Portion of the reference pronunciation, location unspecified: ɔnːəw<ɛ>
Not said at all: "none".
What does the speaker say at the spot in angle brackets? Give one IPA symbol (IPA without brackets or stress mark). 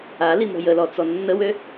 ø